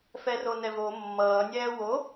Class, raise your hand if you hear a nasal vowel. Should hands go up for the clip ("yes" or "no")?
no